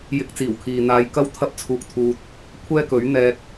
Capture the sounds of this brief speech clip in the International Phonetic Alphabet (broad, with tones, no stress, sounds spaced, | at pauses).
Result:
j ɪ˧ k̚ t͡s iː˨˩ w kʰ iː˨ n̪ aː˧ j k ɐ˥ w t̪ʰ ɐ˥ p̚ t͡sʰ uː˧ k̚ t̪ʰ uː˧ t̚ | kʷʰ ɛː˥ k ɵ˨˥ ɥ n̪ ɛː˧ k̚